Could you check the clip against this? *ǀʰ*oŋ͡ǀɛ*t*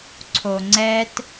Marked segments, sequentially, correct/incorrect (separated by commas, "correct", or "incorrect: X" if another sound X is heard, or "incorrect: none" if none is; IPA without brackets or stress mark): correct, correct